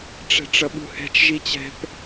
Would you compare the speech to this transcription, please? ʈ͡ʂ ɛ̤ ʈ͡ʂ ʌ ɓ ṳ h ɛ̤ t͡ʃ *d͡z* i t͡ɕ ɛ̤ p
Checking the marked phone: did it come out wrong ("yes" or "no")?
yes